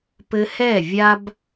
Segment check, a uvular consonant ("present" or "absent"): absent